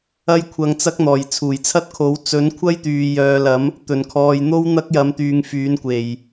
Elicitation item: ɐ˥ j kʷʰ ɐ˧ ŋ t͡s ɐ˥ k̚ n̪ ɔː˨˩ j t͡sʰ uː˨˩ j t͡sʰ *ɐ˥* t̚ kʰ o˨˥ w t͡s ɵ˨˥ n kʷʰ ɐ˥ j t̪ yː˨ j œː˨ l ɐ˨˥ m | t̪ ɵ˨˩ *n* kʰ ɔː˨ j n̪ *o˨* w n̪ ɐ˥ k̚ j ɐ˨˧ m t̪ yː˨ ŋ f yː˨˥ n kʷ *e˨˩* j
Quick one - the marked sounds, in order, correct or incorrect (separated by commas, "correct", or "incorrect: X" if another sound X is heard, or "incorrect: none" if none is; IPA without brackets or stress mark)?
correct, correct, incorrect: o˥, correct